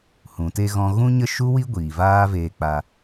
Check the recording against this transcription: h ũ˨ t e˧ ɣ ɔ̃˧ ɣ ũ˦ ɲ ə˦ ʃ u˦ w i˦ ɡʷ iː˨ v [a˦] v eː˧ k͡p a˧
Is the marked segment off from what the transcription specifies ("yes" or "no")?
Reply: yes